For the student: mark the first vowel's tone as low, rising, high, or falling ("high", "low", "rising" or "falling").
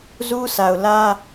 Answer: high